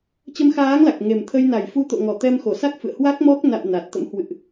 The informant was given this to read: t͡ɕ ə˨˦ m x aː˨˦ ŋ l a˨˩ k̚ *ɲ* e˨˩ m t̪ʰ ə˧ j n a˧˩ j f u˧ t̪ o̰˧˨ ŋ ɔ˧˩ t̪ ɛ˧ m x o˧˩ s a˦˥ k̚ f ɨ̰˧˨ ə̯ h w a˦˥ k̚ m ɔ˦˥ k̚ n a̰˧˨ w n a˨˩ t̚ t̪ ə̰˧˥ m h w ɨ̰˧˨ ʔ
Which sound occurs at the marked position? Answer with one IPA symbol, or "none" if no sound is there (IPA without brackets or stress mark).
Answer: ŋ